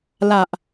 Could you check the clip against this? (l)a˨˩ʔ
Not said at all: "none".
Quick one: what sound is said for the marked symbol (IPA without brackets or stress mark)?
l